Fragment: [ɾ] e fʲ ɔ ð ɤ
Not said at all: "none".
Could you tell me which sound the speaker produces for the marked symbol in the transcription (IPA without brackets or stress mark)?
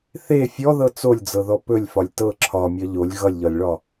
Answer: θ